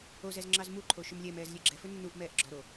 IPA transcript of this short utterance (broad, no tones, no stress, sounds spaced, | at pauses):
o z ɛ z ŋ͡ǁ ɑ z m u ǃʰ o ʃ ʏ m lʲ ɛ m ɛː z lʲ ɛ ɡ͡ǁ ɛ f ɵ nː u ʔ m ɛː ʔ ɡ͡ǁ ɔ ɾ o